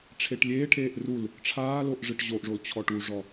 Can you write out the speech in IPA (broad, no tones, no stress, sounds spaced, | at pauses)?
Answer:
ʈ͡ʂʰ e ʈ lʲ eː ʈʰ eː ʔ r u l | ʈ͡ʂʰ aː l o ʔ ʐ ɨ ʈ ʑ o ʔ ʐ o l t͡ɕʰ ɔ ʈ u ʐ ɔ